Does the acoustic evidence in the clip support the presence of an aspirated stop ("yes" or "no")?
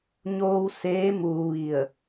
no